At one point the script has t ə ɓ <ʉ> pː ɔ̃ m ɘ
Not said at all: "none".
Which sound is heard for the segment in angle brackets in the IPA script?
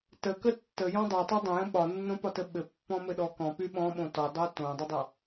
ɘ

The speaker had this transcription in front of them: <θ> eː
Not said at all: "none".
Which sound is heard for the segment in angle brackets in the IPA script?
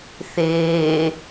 θ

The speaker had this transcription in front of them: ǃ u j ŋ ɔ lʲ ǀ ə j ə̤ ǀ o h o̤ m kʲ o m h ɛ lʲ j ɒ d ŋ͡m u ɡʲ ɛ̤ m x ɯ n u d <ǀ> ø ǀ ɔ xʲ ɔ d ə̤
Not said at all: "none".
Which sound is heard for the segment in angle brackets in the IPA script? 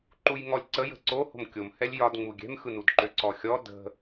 ǃ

